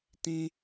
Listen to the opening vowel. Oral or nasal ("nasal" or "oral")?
nasal